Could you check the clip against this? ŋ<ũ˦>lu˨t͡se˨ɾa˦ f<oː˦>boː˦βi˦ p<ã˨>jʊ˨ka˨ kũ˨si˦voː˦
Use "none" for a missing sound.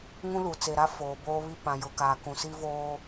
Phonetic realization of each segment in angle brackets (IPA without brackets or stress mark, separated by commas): ũ˦, oː˨, ã˨